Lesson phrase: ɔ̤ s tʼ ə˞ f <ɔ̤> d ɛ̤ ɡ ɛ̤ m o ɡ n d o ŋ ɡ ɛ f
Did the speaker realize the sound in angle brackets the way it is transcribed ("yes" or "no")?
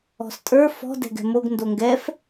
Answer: yes